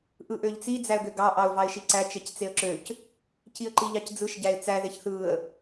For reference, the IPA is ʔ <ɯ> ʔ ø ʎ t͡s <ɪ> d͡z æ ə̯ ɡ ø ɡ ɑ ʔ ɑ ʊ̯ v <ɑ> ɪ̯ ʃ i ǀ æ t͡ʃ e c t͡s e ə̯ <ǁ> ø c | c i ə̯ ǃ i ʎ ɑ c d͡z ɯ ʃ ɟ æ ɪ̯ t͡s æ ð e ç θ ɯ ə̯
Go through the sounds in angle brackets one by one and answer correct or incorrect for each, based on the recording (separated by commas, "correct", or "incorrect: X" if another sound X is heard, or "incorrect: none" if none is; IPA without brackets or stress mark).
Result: correct, incorrect: i, correct, correct